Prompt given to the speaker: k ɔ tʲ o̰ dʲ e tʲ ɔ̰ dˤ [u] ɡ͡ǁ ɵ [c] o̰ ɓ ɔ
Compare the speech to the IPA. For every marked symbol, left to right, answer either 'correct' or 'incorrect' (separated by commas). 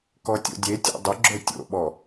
incorrect, incorrect